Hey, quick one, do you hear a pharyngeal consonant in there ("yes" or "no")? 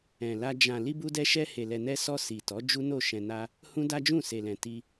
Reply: no